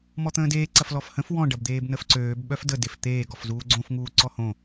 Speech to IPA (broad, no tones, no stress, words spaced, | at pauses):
mɔt̪ə̃ːdeː ǀɐflɔfhə̃f wɔ̃ ɖɐbd̪eːbnəfǀøːb ɓœfdə deft̪eː ɡɔfzuːɡ͡ǀõf ŋuːǀɔhõ